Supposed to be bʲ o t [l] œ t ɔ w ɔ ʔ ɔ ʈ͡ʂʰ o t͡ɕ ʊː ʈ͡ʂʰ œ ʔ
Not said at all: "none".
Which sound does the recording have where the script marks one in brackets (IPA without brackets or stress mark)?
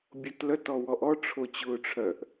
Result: l